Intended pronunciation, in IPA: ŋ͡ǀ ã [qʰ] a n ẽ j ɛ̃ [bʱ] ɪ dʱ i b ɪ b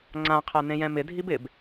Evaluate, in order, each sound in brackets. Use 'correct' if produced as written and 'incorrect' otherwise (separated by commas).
correct, incorrect